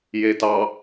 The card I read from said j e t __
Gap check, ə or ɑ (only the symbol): ɑ